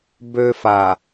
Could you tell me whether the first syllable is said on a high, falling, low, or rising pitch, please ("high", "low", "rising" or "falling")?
high